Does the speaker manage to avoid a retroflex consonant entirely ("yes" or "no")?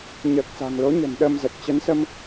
yes